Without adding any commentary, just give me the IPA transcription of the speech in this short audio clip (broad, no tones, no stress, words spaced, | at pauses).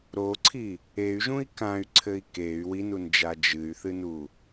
ɾoǀʰi | ey̯ʒũi̯ kãy̯ǀʰɘi̯ key̯ winund͡ʒa d͡ʒɨy̯θɨnu